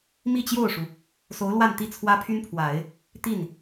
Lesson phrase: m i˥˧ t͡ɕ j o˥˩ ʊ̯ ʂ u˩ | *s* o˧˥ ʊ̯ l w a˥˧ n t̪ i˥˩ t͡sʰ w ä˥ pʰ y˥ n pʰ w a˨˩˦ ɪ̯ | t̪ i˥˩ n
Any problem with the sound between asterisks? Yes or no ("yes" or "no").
no